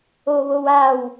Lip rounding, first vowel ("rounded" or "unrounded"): rounded